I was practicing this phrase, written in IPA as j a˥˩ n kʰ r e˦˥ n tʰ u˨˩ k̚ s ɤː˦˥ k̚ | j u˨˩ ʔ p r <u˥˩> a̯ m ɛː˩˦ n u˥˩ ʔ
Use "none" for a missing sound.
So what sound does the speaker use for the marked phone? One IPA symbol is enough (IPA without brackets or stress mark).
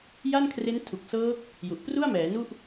u˥˩